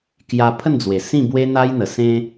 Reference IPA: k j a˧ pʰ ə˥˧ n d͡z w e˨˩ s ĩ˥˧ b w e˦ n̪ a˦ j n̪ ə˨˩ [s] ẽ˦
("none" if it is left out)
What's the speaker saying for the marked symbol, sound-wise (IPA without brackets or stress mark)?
s